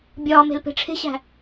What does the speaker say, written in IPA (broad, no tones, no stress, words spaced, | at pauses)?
bʲɒːme̤l pe̤ʈ͡ʂʰe̤ɕæ̤